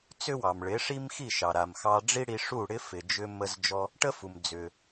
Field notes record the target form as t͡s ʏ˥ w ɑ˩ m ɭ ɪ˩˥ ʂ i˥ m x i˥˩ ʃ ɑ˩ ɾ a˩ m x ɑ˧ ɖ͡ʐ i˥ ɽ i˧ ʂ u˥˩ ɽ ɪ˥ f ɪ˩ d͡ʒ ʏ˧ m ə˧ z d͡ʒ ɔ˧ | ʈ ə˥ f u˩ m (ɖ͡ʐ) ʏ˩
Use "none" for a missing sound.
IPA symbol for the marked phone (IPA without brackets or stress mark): d͡z